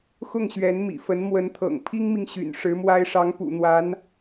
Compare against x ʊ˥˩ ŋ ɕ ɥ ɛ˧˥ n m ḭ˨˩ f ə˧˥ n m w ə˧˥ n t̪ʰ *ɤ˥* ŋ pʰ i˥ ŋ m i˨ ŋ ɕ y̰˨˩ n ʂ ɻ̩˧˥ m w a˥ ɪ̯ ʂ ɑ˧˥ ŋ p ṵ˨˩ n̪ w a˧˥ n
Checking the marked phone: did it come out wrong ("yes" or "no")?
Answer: yes